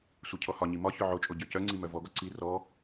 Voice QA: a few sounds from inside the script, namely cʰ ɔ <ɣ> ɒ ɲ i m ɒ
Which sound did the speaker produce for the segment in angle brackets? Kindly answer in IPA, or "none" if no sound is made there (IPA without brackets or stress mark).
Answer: h